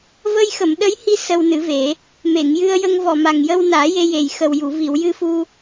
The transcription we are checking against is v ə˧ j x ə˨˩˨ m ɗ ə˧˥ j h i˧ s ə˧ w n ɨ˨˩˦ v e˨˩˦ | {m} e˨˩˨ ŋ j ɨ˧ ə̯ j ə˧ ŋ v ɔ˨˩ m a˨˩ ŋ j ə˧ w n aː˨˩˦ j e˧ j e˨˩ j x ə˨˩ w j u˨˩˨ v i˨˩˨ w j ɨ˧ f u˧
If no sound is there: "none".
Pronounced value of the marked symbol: m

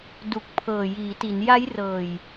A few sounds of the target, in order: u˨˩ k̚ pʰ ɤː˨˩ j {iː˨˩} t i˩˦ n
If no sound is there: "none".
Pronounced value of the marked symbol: iː˩˦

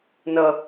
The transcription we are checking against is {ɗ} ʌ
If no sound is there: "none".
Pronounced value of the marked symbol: n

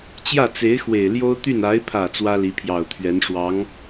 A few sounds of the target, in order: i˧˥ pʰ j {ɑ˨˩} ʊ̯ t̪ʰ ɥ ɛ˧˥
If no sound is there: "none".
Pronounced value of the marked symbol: ɑ˨˩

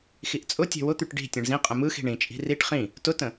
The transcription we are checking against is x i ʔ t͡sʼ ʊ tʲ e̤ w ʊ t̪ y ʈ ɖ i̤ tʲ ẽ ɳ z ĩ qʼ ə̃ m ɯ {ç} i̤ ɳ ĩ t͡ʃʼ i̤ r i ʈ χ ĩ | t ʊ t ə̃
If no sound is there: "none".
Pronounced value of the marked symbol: x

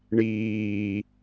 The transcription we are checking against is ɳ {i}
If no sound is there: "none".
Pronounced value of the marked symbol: iː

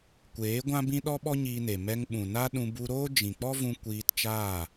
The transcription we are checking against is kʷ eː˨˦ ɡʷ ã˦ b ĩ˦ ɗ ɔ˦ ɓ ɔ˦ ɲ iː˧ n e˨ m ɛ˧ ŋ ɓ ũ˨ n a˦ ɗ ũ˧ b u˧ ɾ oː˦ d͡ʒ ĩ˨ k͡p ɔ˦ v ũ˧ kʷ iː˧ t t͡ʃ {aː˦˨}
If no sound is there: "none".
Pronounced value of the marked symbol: aː˦˨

